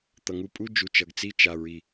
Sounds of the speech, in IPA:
t̪ ʌ˨ ŋ u˧ pʼ u˦ d͡ʒ u˨ t͡ʃ ʌ˨ ɡ t͡s i˦ t͡ʃ a˨ ɹ i˨

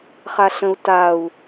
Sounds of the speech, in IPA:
χ a ɬ ə̃ u̯ t a u̯

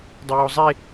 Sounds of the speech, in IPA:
dˤ ɐ j o zˤ e

